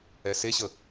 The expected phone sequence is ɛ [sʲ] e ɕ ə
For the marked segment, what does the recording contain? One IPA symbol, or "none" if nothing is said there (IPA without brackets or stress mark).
s